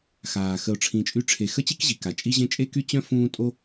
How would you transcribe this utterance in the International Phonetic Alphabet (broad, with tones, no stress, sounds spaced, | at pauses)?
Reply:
x aː˩ x ə˨ ʊ̯ ʈ͡ʂʰ ĩ˨ t͡ʃʼ y˦ ʈ͡ʂʰ e˨ x ə˥ t͡ɕ i˥ k ʑ i˩ k a˩ t͡ʃʼ i˦ ʑ ẽ˦ t͡ʃʼ e˥ k y˥ t͡ɕ œ̃˥ f ũː˥ tʼ o˦